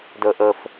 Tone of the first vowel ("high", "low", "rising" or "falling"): low